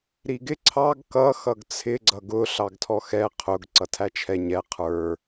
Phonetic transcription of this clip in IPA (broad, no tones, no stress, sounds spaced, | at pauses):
ɾ i ɡ ɪ ǀʰ ɑ ɡ k ʌ x ʌ ɡ t͡sʰ ɪ ɡ͡ǀ ʌ ɡ ʊ ɬ ɑ ɡ tʰ ɔ x ɛ qʰ ʊ ɡ ǀ ʌ tʰ æ t͡ʃʰ ɛ ɲ ɛ qʰ ə˞